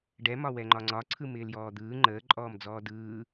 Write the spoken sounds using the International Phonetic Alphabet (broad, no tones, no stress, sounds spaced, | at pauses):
ɖ ɛ m ɒ w ɛ ŋ͡ǃ ɒ ŋ͡ǀ ɒ ǀʰ ɯ m ɪː l j ɔː d̪ ɯː ŋ͡ǃ əː ǃʼ ɔː m d͡z ɔː d ɯː